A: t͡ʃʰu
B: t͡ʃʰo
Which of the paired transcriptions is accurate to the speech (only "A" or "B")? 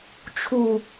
A